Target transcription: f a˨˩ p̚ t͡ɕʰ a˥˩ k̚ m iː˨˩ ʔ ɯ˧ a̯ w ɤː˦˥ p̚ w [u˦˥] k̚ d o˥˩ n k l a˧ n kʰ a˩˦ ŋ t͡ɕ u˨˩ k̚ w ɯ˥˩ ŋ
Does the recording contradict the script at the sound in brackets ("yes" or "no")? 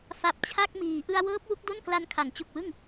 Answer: no